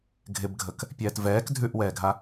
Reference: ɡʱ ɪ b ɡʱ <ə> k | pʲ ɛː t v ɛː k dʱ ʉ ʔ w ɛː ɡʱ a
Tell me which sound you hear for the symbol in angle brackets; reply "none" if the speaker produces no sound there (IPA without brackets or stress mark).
ə